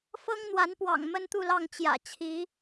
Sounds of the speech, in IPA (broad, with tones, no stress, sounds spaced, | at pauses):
f ɤ˦ ŋ n̪ w a˨˦ n p w ɑ̰˨˩ ŋ m ə˦ n t̪ u˥˨ l ɑ˥˨ ŋ t͡ɕ j ä̰˨˩ t͡ɕʰ i˨˦